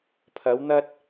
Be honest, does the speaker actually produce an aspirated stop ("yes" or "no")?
yes